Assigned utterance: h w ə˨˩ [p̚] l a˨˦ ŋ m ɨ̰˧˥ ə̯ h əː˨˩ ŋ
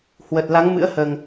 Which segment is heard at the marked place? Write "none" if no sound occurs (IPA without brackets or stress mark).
t̚